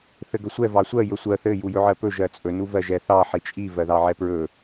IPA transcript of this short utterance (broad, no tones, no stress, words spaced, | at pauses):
θɘɡɵsʷɛ vɑsʷɜ jɵsʷɜ θɘ jujɵʕɜpɵ ʒɜt͡sʼɵ nuvɜʒɛθɑ ħit͡ʃʼi vɜðɑʕɛpɹɵ